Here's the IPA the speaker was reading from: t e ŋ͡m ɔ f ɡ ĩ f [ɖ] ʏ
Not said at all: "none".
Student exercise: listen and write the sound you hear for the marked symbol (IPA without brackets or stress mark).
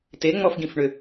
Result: ɳ